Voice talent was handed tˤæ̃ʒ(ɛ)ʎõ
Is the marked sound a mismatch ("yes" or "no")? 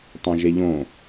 yes